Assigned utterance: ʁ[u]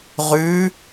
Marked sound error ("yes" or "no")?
yes